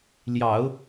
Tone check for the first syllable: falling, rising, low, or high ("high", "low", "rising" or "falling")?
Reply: low